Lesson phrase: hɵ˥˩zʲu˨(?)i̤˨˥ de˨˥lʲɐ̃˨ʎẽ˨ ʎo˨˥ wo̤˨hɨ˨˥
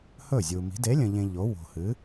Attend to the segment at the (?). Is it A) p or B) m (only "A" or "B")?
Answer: B